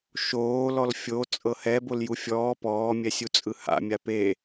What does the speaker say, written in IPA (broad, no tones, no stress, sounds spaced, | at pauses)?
ʃ oː l ɔ l fʲ o t͡sʼ ɤ h ɛ b o l j u fʲ ɔː p ɔː mʲ ɛ sʲ u t͡sʼ ɯ h a̰ mʲ a p e